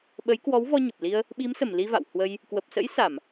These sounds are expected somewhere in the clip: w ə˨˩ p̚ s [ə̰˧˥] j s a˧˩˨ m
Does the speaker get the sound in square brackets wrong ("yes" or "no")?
no